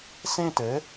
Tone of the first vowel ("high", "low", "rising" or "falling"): falling